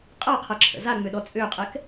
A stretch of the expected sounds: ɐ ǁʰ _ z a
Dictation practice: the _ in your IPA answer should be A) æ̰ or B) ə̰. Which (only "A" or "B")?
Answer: B